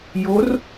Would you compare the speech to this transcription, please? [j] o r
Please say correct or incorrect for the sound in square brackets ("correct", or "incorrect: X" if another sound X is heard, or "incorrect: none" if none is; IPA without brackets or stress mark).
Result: correct